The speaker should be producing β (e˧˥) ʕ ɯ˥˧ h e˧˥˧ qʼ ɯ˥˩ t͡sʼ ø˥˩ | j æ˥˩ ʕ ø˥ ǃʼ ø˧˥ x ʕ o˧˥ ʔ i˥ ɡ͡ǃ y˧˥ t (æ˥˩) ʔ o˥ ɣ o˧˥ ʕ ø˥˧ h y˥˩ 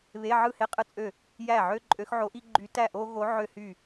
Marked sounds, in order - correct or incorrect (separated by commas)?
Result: incorrect, correct